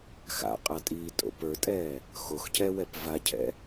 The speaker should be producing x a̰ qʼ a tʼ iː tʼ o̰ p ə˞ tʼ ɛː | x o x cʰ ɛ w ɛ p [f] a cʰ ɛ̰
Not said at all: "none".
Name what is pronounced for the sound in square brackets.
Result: v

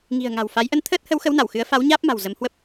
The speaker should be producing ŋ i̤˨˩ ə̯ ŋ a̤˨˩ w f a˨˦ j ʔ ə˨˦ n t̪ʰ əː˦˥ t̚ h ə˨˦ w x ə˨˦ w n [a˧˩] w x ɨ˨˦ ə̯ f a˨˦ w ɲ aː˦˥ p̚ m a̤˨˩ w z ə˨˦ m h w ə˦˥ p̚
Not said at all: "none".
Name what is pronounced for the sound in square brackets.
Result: a˧˩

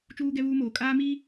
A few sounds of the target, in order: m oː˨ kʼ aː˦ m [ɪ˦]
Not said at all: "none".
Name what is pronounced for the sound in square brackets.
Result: i˦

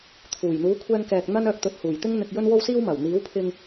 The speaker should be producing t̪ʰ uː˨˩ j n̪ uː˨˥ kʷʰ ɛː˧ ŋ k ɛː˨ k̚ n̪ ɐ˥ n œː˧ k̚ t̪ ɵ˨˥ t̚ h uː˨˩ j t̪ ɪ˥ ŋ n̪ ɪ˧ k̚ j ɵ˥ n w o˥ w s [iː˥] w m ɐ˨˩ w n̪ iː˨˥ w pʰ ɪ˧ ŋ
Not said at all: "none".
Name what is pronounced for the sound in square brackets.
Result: iː˥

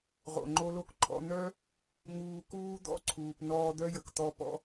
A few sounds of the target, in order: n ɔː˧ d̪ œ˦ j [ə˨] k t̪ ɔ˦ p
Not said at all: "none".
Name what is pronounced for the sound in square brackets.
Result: ə˨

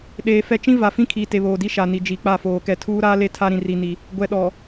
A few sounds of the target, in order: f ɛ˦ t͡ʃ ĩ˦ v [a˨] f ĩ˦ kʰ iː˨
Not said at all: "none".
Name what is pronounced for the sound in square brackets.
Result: a˨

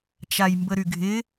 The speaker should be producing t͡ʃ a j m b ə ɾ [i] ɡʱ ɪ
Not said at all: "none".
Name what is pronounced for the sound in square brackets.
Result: y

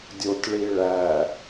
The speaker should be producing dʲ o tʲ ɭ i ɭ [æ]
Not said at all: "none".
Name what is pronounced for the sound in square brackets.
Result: æ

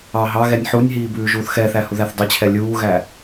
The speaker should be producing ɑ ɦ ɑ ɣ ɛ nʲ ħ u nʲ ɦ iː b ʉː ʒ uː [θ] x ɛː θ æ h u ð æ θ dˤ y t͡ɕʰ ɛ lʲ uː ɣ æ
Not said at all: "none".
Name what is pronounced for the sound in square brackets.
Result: θ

